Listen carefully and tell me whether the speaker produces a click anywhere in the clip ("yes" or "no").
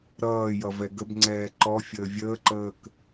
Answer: yes